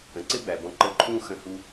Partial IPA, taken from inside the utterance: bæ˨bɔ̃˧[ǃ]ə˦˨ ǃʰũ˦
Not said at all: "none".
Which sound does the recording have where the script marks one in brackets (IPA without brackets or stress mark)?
ǃ